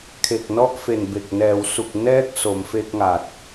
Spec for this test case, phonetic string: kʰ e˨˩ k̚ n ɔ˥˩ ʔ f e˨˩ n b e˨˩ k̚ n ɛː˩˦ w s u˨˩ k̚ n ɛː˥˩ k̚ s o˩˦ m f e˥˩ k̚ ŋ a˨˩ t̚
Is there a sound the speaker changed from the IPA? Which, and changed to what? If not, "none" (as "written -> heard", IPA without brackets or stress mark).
none